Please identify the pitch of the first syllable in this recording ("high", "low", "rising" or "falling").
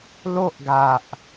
high